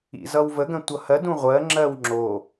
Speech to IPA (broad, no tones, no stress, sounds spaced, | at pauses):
ḭ z ʌ w v ə ɡ ə̃ tʷ ʌ h ɜ d ũ ʁʷ ɜ ŋ͡ǁ ɜ w ŋ͡ǁ o